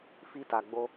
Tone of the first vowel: high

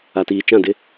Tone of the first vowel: low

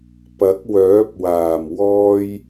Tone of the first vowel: rising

